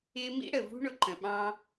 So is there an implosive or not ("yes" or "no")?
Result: yes